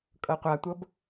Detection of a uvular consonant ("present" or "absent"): present